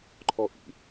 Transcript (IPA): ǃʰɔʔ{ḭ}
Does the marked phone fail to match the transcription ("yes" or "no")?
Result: no